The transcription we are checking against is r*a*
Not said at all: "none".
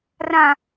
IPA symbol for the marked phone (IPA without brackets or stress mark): ã